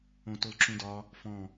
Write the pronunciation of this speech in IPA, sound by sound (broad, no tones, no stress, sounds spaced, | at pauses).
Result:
õ t o l ǁ ũ d ɒ | f ɔ̃